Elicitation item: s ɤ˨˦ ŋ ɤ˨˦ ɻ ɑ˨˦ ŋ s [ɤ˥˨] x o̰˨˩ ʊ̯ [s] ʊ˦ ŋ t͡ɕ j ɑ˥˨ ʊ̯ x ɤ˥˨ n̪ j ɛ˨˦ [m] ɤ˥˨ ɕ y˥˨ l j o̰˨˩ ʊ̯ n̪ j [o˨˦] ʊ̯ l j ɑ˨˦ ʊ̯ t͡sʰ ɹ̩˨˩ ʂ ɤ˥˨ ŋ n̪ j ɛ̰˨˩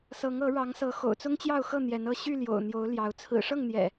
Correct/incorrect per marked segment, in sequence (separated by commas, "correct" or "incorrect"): incorrect, incorrect, incorrect, correct